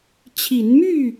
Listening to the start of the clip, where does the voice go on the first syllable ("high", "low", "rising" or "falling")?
rising